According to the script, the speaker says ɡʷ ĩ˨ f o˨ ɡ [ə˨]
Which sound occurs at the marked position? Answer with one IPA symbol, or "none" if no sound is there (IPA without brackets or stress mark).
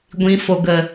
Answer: ə˨